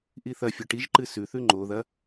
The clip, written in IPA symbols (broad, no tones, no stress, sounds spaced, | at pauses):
ʔ i θ ɐ fʲ o ʈ i ʒ ǃ ɨ s ʉ θ ʉ ŋ͡ǃ o ð ɐ